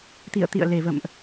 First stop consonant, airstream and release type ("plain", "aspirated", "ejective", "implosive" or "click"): plain